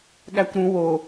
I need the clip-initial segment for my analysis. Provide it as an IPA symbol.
ɠ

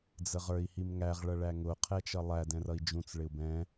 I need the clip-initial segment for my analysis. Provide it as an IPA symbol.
d͡z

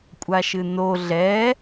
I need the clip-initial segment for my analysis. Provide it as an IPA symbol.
kʷʼ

